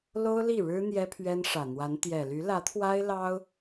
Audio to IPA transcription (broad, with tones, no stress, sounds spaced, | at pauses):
l o˥ ʊ̯ l i˥˩ ɻ ɻ̩˥ n̪ j ɛ˥ pʰ ɥ ɛ˥ n ʂ ä˨˩ n̪ w a˧˥ n t̪ j ɛ˨˩ l y˧˥ l ä˧˥ t̪ʰ w a˥ ɪ̯ l ɑ˥ ʊ̯